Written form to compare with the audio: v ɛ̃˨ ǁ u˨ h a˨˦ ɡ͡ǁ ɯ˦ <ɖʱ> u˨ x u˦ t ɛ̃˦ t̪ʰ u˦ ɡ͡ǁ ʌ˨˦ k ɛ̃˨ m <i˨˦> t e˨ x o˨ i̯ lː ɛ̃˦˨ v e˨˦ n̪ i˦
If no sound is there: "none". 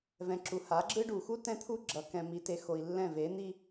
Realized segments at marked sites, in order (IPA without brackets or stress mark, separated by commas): ɖ, i˨˦